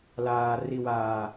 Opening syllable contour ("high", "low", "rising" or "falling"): low